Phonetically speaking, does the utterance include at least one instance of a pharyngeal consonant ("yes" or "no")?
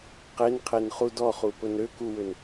no